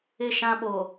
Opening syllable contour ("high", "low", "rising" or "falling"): falling